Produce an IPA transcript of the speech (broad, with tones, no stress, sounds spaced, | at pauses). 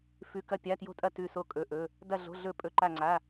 f ʉ˧˥˧ k ɐ˥˧ pʲ a˧˥˧ t j o̤˥˧ tʼ ɐ˥˧ t ʉ˥˧ s o˥˧ kʼ ɵ˧˥˧ ʔ ɵ˧˥˧ | d ɐ˥˧ ɮ o̤˧˥˧ ɮ ɵ˥˧ pʼ ɵ˧˥˧ ǃ a˥˧ ŋ͡ǀ a˧˥˧